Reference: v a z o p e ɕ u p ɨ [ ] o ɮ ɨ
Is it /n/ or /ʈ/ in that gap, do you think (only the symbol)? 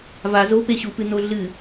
n